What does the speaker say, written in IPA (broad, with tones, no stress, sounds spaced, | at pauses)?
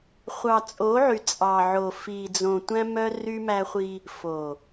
χʷ ɑ˨ t͡sʼ o˨˦ ʕ y˨ t͡sʼ ɑ˨ ʕ o˨ f i˨ d͡z õ˨ tʷ æ̃˦ m œ˦ r y˦ m æ˦ χʷ i˦ | f o˨